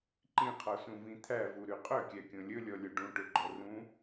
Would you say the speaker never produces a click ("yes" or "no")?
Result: no